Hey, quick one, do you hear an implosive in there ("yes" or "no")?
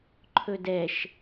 no